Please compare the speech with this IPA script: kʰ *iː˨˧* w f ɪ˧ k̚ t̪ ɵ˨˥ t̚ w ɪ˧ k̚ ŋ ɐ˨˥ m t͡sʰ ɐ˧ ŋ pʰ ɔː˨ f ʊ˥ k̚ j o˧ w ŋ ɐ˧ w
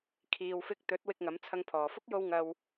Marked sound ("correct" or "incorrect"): incorrect